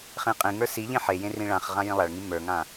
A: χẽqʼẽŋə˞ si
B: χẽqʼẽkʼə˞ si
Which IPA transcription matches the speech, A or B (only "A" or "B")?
A